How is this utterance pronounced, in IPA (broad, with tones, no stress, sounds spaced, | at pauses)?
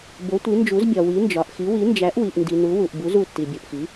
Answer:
b o˨˥ tʷ i˨˥ n d͡ʒ u˨˥ z bʲ ɒ˨ w i˨˥ n d͡ʒ ɒ˨ ʔ x i˨˥ w i˨˥ n d͡ʒ æ˨˥ ʔ w i˨ ʔ n d i˨ n u˨˥ w u˨ ʔ b u˨˥ z u˨ tː i˨ bʲ o˨ ʔ x i˨˥